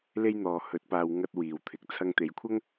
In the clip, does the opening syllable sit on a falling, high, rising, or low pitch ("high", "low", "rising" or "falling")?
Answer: high